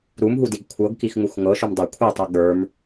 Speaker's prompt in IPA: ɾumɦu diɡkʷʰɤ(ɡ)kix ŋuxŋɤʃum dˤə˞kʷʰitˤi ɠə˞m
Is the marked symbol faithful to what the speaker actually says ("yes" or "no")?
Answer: yes